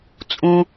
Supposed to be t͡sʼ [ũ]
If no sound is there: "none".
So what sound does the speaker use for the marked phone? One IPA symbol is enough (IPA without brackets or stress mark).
ũ